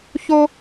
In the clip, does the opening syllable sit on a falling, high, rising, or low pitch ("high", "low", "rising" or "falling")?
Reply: high